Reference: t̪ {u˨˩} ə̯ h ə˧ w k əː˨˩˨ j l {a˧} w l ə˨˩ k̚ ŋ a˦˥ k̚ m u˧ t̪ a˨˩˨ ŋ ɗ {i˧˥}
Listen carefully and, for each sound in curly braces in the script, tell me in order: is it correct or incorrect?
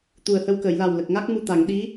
correct, incorrect: a˨˩, correct

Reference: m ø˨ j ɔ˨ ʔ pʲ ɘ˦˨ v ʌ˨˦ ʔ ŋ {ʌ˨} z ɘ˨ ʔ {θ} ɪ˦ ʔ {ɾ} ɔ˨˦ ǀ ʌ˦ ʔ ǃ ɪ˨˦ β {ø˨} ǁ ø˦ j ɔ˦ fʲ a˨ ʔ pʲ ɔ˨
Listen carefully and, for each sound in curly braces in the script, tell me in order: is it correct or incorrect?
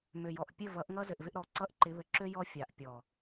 incorrect: ʌ˦, incorrect: v, correct, incorrect: ɘ˨

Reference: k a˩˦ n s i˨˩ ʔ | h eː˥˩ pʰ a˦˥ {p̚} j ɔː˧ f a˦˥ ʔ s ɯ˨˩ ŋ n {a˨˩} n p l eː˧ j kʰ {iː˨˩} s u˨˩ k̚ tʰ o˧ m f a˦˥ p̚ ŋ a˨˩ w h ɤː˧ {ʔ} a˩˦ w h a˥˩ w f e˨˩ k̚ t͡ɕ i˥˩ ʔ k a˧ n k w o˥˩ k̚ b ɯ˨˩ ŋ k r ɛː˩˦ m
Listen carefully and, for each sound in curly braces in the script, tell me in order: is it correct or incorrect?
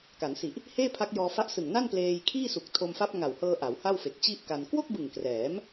incorrect: k̚, incorrect: a˥˩, incorrect: iː˥˩, correct

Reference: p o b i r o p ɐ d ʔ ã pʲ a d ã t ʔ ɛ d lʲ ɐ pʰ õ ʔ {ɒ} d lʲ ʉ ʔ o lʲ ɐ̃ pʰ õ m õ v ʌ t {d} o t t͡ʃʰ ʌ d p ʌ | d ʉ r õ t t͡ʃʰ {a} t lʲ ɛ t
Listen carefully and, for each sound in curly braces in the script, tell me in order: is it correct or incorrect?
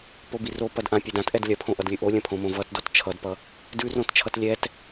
incorrect: ʌ, correct, incorrect: ʌ

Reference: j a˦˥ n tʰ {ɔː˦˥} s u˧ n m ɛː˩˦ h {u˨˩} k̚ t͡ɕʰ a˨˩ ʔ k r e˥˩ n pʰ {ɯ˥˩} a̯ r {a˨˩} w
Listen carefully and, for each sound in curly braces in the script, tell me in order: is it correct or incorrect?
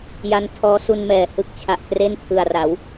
correct, incorrect: ɯ˨˩, incorrect: ɯ˨˩, incorrect: a˩˦

